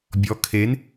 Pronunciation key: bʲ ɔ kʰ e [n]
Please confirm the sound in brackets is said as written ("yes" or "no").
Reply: yes